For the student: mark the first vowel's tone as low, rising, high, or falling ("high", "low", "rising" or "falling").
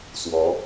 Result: rising